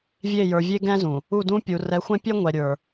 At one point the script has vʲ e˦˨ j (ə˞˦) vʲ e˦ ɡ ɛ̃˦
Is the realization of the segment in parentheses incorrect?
yes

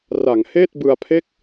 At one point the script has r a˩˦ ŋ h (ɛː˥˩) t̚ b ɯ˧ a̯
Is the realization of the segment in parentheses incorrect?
yes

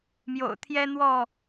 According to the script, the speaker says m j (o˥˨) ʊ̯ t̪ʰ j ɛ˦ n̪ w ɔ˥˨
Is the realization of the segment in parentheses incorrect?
yes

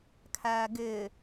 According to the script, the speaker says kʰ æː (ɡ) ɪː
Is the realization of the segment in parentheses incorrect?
no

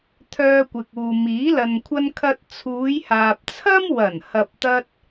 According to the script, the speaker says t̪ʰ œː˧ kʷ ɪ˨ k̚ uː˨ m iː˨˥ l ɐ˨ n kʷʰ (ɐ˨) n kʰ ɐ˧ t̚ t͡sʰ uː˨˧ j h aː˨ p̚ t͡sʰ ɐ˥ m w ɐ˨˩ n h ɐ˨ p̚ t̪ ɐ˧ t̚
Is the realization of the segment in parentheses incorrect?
yes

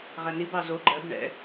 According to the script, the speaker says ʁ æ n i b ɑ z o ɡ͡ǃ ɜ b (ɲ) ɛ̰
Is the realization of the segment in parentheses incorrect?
yes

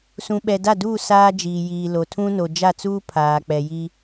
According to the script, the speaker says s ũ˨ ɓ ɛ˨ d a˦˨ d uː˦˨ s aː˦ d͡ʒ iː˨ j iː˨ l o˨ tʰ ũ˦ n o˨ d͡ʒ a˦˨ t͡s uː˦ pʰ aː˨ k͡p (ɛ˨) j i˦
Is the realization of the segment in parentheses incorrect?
no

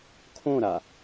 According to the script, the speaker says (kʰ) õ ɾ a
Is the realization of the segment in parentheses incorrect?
no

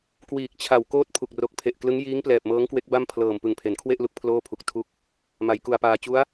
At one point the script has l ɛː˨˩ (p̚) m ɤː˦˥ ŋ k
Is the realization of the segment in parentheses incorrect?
no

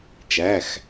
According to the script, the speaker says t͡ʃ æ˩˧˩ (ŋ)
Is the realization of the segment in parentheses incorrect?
yes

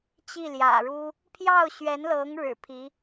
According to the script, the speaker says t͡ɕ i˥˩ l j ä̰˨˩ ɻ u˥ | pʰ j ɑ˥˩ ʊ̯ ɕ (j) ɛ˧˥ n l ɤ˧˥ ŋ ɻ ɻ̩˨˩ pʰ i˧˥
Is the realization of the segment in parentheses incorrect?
yes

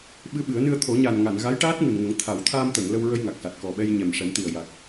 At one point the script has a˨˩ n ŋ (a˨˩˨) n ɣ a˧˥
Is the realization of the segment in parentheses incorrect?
no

